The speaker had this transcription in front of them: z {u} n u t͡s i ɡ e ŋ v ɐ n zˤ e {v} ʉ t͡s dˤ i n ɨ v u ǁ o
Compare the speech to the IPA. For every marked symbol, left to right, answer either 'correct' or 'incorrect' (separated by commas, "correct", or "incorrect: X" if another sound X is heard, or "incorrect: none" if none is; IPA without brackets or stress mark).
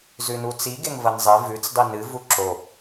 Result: incorrect: ʉ, correct